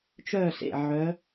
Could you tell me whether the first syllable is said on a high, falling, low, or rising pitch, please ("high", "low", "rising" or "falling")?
falling